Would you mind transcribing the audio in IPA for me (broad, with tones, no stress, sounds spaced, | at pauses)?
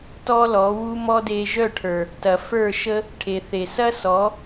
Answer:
t ɔ˦ l ɔ˨˦ w u˦ m ɔ˦ d e˧ ʒ œ˦˨ ʈʰ ə˞˨ | t ɐ˨ f ə˞˦˨ ʃ ə˦ | ʈʰ e˨ θ e˨ s ɐ˦ s ɔ˨˦